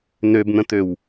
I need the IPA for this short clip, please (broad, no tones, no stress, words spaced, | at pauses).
nøbn̪ə̃t̪øw